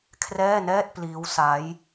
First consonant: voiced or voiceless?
voiceless